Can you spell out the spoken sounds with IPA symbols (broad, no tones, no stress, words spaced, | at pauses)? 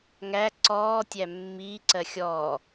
ŋæ ǀɔːtʲæ mːiːǀɜ xʲɔː